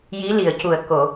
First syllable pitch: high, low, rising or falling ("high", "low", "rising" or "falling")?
rising